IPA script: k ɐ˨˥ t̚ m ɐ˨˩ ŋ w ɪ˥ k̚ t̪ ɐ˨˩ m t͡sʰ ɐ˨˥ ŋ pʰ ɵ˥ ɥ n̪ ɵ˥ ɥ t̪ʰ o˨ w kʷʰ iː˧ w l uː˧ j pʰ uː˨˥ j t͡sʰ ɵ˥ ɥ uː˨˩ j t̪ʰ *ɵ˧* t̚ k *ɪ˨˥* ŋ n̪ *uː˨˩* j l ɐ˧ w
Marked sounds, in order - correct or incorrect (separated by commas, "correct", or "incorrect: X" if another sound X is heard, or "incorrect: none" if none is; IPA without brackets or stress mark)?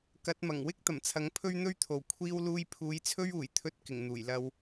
correct, incorrect: ɪ˨˩, correct